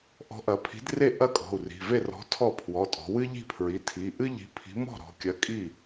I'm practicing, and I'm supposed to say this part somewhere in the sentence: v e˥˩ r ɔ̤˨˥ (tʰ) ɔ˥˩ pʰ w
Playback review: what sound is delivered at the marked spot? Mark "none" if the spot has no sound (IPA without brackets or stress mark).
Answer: tʰ